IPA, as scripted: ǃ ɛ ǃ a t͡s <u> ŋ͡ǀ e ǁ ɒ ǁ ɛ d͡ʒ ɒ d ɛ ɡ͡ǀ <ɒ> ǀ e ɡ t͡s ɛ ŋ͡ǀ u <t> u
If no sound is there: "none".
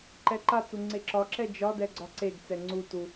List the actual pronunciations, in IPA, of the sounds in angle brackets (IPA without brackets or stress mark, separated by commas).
u, ɒ, t